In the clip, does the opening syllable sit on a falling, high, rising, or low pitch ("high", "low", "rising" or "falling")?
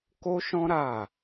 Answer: high